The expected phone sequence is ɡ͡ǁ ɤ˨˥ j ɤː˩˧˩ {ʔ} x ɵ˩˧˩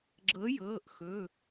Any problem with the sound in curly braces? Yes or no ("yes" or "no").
no